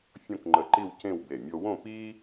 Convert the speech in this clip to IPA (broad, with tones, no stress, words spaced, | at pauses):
fʲõ˥˧kŋ͡ǃə˧˩ǃi˥˧w cẽ˥˧wbe˧˩ mʲo˧wõ˥˧ pi˥